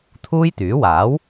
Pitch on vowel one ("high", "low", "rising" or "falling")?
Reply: high